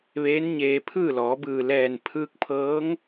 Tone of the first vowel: rising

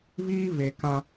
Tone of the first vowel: high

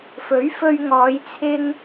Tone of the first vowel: rising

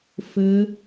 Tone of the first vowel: rising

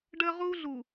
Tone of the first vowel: high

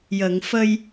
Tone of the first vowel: low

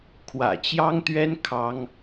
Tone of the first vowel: low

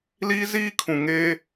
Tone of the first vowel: high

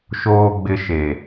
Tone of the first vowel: low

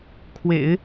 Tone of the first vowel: low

